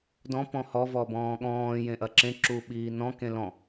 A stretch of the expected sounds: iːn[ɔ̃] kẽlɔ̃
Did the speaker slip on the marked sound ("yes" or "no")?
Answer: no